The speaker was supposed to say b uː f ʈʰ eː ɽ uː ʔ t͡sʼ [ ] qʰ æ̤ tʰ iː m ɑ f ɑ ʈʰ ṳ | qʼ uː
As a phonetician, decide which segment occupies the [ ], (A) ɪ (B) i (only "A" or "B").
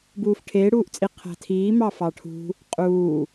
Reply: B